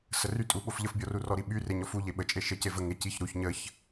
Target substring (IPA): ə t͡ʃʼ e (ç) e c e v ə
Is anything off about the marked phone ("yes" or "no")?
yes